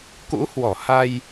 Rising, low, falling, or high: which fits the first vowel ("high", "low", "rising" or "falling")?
rising